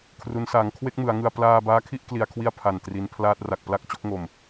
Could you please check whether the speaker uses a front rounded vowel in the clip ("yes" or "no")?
no